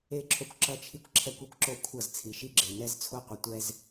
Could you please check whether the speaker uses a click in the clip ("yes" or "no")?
yes